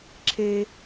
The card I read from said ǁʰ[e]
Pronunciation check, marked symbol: correct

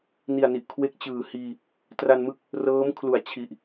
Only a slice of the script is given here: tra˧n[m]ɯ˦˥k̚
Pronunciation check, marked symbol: correct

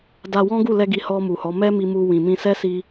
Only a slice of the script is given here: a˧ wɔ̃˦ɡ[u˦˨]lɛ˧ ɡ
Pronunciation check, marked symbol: correct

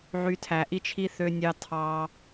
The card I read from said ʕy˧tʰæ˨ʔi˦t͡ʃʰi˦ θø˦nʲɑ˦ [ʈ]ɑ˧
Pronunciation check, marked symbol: incorrect: tʰ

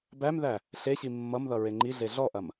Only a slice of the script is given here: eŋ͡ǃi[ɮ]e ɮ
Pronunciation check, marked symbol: correct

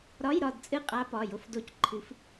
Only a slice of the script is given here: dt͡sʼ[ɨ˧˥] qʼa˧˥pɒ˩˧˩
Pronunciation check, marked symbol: incorrect: ɨ˦˨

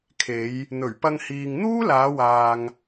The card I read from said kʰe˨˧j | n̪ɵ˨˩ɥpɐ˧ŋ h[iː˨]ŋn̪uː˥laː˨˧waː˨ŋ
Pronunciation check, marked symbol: correct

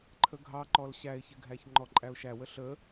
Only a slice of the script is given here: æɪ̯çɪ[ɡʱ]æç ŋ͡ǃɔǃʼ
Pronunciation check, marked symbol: correct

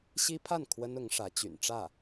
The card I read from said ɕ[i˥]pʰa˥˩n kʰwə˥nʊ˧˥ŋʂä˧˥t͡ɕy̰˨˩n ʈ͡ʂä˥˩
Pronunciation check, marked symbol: correct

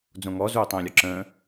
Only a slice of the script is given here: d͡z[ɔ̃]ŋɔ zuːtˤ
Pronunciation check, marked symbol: incorrect: õ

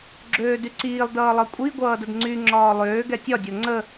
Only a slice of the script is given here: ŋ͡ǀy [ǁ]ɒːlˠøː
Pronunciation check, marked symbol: incorrect: ŋ͡ǁ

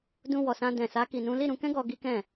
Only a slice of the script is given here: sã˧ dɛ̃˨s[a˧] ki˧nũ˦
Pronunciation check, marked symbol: incorrect: a˨˦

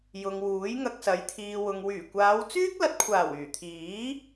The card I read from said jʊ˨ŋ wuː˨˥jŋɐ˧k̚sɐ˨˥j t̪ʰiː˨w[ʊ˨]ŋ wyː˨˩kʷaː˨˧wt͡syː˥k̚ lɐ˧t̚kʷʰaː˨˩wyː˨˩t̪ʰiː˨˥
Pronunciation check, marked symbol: correct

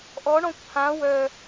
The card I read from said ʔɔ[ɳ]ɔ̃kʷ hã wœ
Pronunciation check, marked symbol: correct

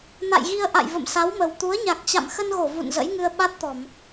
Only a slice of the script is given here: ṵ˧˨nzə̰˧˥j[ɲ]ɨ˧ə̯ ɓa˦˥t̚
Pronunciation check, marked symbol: incorrect: ŋ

